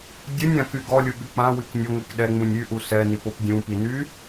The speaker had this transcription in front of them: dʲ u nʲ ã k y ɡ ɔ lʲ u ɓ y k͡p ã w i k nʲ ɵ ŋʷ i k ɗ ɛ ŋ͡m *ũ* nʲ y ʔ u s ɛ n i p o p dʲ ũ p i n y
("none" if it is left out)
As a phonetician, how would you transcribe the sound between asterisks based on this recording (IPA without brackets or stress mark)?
ũ